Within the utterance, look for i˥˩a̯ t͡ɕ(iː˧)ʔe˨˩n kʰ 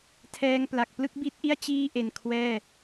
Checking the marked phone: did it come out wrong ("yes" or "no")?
yes